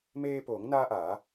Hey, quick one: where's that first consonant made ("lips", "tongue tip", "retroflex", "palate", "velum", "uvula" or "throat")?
lips